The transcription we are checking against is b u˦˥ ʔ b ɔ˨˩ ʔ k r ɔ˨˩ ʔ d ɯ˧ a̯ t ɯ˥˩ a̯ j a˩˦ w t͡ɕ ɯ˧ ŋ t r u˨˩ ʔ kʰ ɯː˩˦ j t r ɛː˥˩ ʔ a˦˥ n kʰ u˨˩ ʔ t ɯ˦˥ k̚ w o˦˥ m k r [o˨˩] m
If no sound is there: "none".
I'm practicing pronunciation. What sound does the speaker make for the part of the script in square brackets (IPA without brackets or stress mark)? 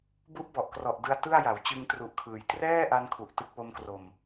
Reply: o˧